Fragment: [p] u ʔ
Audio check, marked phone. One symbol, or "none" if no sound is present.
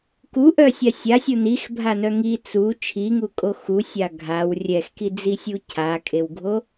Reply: k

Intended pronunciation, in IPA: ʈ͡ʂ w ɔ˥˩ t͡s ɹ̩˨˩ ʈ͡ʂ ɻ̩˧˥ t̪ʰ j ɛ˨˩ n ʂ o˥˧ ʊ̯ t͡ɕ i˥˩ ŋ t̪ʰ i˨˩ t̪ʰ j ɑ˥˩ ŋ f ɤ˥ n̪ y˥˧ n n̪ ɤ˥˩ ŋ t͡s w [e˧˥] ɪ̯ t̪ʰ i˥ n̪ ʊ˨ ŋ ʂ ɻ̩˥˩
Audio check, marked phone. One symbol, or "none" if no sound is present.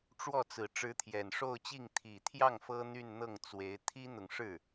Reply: e˧˥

